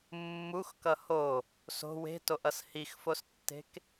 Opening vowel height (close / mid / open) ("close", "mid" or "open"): close